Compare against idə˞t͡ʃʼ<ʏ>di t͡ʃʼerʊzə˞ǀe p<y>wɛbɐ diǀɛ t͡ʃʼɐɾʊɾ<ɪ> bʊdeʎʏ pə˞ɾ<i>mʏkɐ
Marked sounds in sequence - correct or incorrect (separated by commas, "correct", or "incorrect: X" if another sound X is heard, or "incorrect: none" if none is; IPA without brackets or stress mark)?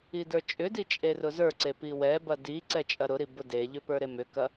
correct, incorrect: i, incorrect: i, incorrect: e